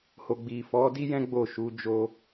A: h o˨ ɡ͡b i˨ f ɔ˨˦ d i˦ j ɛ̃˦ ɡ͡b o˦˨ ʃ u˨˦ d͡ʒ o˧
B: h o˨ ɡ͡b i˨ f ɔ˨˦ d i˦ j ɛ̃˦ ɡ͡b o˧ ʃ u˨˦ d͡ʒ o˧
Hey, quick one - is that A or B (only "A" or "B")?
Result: A